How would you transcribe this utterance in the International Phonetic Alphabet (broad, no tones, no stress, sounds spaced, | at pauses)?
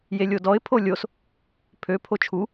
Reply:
j e lʲ o d ɔ ɪ̯ pʰ o lʲ o s | pʰ ø pʰ o t͡ʃʰ u